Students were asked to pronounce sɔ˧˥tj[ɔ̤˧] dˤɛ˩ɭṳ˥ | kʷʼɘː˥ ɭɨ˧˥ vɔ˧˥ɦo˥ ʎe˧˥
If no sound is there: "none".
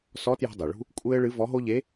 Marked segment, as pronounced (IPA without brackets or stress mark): ɔ̤˧